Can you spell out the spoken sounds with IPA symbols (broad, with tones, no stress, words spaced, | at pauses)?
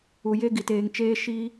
u˨je˦ ɡi˨teː˨ŋt͡ʃeː˦ ʃi˦